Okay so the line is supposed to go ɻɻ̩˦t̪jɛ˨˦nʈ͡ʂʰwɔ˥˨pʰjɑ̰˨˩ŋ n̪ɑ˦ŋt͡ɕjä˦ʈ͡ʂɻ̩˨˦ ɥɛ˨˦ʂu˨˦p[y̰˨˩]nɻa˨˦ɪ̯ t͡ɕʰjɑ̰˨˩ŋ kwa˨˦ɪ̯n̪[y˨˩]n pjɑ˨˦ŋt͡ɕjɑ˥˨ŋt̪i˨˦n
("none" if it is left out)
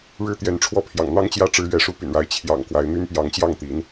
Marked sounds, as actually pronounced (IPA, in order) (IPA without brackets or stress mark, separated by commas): y̰˨˩, y˦